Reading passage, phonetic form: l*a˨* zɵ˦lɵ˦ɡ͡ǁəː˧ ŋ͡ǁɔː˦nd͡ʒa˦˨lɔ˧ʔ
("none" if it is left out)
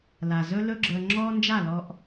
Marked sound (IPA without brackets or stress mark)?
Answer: a˨